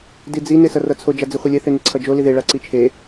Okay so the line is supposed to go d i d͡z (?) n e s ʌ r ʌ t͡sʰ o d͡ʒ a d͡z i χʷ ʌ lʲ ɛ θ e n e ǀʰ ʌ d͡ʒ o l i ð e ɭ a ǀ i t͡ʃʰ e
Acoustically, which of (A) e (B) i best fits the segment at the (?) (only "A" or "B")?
B